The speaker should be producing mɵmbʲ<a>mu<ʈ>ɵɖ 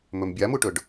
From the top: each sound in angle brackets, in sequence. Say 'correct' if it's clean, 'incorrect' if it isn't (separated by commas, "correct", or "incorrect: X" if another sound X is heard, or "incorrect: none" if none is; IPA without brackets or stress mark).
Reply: correct, correct